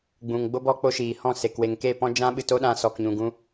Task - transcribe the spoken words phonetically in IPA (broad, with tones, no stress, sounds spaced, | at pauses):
ɡ͡b ũ˨ ŋ ɡ͡b o˦ b ɔ˦ k͡p o˦ ʃ iː˨ h ɔ̃˦˨ s e˨ k w e˨ ŋ k e˦˨ p ɔ̃˦ d͡ʒ ã˦ ɓ ɨ˧ t o˦ ɗ ã˧ s ɔ˨ k ɲ ũ˨ ɡ ũ˧